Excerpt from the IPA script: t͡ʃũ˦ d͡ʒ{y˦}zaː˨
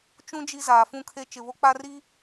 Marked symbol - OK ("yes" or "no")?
no